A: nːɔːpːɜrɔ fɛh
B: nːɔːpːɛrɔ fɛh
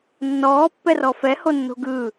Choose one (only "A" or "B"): B